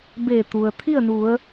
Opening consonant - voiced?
yes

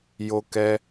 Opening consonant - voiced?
yes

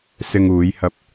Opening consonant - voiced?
no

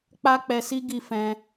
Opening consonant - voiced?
no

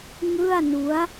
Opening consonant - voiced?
yes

